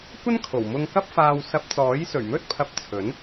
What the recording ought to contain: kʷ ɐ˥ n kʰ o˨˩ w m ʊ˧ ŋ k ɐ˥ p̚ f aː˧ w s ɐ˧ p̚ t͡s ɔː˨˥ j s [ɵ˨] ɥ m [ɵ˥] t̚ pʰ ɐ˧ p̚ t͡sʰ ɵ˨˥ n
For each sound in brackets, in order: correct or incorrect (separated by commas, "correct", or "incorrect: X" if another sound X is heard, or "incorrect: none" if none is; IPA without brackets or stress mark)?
incorrect: ɵ˨˩, correct